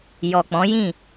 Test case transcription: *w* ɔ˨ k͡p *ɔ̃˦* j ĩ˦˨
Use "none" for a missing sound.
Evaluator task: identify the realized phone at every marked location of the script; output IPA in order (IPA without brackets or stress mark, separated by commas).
j, ɔ̃˨˦